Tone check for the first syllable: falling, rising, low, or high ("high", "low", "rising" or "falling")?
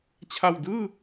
low